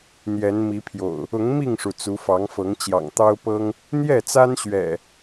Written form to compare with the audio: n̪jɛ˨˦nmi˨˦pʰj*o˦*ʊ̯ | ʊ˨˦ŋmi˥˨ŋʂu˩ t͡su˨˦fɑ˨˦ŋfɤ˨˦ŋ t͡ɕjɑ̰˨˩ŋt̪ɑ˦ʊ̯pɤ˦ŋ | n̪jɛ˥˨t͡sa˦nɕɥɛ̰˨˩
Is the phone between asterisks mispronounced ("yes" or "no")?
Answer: yes